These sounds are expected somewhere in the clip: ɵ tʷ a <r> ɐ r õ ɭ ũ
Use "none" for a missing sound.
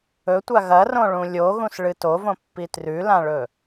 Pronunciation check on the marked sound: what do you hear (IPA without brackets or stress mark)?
ɣ